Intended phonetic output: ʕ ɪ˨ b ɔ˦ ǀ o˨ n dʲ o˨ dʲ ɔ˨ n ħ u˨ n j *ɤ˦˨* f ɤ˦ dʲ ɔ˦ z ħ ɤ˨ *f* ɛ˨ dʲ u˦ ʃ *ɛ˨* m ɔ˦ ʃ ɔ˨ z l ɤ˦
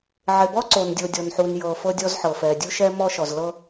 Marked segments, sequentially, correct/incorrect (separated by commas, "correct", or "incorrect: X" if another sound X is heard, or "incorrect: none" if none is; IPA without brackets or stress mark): incorrect: ɤ˨, correct, incorrect: ɛ˦